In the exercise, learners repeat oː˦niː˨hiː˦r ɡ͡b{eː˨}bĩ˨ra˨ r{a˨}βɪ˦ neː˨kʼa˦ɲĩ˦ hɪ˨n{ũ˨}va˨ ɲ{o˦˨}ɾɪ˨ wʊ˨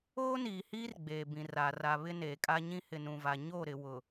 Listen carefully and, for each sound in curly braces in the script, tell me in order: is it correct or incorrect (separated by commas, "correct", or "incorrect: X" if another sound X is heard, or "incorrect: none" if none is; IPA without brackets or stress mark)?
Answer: correct, correct, correct, correct